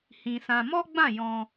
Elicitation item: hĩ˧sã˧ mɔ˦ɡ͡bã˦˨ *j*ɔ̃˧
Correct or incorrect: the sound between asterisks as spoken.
correct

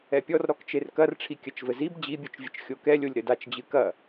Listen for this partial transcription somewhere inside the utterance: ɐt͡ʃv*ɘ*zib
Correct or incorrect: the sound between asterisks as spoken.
correct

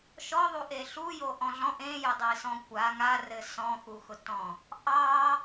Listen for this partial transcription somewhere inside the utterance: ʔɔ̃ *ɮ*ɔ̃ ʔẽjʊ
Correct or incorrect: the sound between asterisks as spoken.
correct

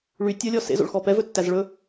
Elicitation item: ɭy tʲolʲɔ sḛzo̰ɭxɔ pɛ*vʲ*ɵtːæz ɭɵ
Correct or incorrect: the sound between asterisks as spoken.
incorrect: v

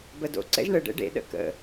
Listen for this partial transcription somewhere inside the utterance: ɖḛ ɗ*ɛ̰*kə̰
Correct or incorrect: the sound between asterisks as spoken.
incorrect: ə̰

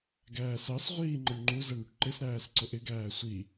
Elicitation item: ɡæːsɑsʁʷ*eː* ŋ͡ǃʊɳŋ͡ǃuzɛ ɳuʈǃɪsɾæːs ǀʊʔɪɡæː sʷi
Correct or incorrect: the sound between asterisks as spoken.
incorrect: iː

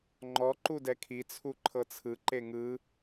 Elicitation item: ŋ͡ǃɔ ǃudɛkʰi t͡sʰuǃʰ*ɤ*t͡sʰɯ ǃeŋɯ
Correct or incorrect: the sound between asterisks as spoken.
correct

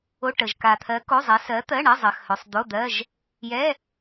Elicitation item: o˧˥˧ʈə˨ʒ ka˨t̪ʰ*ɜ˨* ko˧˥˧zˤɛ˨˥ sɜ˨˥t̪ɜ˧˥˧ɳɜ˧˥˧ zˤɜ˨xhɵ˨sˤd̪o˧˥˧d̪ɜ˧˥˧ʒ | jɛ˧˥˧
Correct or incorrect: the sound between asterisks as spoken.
incorrect: ɜ˨˥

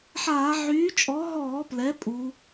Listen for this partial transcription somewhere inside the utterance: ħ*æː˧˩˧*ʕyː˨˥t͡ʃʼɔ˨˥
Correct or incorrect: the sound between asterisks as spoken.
incorrect: aː˧˩˧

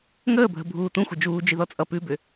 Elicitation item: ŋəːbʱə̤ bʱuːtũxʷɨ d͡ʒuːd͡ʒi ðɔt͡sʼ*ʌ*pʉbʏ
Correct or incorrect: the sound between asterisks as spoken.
correct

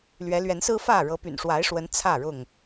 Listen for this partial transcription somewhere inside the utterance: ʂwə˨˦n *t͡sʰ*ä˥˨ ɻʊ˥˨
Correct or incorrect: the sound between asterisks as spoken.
correct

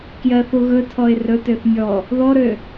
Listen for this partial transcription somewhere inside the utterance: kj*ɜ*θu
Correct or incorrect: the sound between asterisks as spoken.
correct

